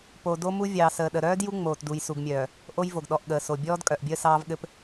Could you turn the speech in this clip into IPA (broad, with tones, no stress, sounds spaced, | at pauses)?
p o˨ d o˦ m u˦ vʲ ɑː˨ s əː˨ ɗ ə˨ ɾ œː˦ d j u˦ ŋ͡m oː˨ t d u˨ j s u˨ ɡ mʲ œː˨ | ʔ o˦ j v o˨ ɡ ɗ ɔ˨ ʔ ɠ əː˨ s o˨ bʲ ɔː˦ d kʼ œ˨ ʔ bʲ əː˦ s ɑː˦ v ɠ ɘ˦ p